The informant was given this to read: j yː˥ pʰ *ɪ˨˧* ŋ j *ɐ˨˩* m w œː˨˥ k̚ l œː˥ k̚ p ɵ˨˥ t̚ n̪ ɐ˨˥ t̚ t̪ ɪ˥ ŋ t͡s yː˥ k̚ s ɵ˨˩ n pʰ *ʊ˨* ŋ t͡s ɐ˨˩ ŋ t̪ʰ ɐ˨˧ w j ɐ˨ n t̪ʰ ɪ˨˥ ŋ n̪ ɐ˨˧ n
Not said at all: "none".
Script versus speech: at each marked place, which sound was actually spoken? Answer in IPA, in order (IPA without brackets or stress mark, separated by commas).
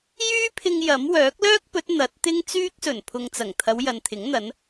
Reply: ɪ˧, ɐ˨˥, ʊ˨